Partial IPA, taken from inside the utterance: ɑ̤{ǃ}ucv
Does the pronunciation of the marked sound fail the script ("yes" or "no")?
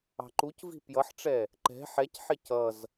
no